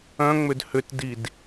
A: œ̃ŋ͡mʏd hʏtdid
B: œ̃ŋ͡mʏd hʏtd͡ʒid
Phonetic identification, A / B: A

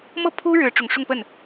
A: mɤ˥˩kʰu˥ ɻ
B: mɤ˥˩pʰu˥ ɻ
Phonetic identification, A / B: B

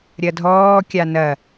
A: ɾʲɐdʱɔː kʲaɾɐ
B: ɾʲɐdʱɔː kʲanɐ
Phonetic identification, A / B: B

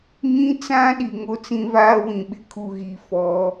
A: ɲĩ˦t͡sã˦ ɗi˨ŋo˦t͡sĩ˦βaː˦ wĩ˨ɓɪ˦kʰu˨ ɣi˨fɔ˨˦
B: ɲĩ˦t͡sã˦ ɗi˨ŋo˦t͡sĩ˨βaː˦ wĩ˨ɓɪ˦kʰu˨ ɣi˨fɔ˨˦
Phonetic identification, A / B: A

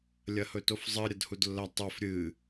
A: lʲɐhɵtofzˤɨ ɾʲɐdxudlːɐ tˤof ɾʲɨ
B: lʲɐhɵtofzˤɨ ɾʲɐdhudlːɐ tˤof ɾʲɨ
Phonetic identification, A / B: B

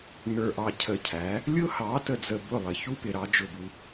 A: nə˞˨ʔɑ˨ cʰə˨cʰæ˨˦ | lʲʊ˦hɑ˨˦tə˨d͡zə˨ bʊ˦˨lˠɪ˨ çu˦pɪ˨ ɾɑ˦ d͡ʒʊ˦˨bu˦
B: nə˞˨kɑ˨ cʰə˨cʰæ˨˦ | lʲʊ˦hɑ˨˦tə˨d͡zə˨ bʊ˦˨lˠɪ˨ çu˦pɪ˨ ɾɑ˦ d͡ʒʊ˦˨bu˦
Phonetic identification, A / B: A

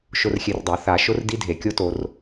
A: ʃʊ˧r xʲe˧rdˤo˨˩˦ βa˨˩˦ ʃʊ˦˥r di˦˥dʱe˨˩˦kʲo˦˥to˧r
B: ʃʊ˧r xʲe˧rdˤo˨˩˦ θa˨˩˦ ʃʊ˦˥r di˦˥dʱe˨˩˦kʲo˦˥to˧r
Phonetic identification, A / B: B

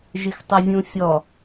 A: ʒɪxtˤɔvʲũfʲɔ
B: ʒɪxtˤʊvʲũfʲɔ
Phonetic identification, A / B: B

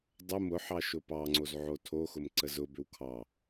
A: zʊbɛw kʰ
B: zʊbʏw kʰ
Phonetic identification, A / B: B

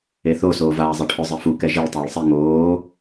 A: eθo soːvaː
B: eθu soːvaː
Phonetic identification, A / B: A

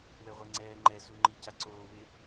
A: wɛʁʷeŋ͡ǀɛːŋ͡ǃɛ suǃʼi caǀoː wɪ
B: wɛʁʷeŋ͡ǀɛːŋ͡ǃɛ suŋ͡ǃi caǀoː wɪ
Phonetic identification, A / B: B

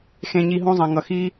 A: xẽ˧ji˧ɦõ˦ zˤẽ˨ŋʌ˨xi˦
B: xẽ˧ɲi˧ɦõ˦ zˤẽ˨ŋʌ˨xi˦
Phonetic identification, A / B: B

